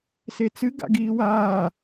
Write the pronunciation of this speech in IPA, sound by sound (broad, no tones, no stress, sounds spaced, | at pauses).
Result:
s e t͡s ɨ ɡ a̰ ɡ iː w aː